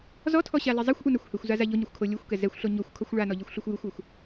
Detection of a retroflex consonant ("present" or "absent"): present